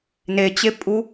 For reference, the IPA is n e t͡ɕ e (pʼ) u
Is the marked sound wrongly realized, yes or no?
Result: no